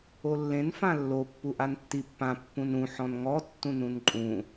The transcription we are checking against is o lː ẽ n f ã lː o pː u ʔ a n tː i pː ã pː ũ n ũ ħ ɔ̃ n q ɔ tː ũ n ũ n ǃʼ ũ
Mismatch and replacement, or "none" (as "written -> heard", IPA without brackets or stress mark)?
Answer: q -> ŋ